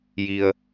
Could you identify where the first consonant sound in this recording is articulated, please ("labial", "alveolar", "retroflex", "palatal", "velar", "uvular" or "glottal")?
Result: palatal